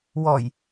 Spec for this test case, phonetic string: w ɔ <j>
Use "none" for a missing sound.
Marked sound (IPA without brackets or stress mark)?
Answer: j